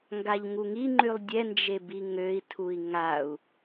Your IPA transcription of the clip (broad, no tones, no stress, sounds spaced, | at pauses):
ŋ ɡ a ʎ ŋ u ŋ i ŋ͡ǃ y lˠ dʲ ɛ n d͡ʒ e b i ŋ ø i̯ tʰ u i̯ ŋ a u̯